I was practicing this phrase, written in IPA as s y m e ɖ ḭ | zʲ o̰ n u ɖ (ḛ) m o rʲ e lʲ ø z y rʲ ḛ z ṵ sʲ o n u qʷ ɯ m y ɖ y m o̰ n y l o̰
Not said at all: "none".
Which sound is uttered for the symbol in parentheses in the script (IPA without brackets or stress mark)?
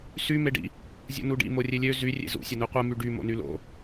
ḭ